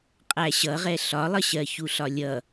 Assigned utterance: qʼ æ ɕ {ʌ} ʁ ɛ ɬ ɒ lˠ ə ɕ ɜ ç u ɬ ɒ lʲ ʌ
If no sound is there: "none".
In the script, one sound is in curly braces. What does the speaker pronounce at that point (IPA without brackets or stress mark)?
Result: ʌ